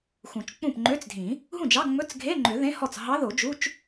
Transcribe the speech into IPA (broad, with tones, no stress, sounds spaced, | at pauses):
x ũ˨˩˦ t͡ʃ k͡p ũ˥˩ p ŋ͡ǃ ø˧˥˧ t͡s dʱ ĩ˨˩˦ | ɦ ũ˥˩ d͡ʒ ɑ˧˥˧ ŋ͡m ɵ˧˥˧ t͡s ɡʱ e˧˥˧ ŋ͡ǃ ø˨˩˦ ð ẽ˧˥˧ h ɔ˥˩ t͡s ɦ ɑ˧˥ ð o˨˩˦ d͡ʒ u˧˥˧ t͡ʃ